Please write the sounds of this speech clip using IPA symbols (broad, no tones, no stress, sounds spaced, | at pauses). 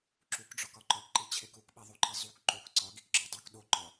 ǁ u k ɖ͡ʐ ɒ k ɒ ǃ ɒ k ǃ i t͡ɕʰ e k u k ɓ i ðˤ o ǃ i zˤ u k ǃ o k ǀ ɒ ɡ i k ǁ ɒ dˤ u k ɗ o ǃ ɒ